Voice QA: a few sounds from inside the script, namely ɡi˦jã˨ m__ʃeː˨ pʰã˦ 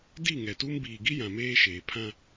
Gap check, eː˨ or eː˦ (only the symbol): eː˦